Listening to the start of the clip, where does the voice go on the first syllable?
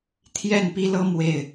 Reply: falling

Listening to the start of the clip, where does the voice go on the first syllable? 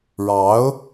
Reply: rising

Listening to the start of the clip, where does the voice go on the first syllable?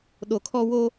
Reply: low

